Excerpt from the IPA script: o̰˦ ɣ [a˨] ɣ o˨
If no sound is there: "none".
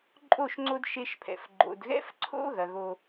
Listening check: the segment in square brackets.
ɐ˨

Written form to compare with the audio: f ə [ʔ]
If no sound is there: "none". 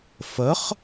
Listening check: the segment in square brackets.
χ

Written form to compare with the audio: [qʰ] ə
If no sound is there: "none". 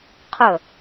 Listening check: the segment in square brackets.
qʰ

